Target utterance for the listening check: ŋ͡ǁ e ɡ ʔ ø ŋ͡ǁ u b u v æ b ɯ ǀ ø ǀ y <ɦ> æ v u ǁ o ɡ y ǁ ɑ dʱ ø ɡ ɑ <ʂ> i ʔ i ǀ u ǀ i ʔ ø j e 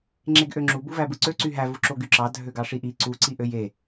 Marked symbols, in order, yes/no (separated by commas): yes, yes